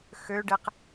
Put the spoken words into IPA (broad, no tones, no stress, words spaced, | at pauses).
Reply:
xøɖeq